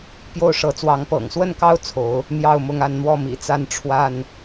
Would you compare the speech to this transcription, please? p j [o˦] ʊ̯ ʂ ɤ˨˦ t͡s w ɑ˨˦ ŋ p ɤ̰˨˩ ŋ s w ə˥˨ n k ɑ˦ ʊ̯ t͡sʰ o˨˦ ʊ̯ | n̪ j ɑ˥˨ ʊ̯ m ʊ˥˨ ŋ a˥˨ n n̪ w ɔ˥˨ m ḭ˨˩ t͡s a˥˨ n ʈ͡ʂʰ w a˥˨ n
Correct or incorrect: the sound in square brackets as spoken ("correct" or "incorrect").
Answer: incorrect